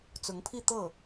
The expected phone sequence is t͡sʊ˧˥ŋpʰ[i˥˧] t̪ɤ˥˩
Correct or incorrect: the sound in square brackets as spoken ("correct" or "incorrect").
correct